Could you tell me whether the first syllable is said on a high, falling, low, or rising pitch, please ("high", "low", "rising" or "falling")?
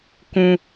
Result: high